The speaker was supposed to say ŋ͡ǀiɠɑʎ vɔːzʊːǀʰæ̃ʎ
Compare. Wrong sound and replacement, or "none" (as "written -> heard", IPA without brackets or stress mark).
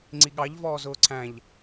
none